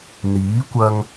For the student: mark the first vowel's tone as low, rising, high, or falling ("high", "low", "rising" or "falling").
rising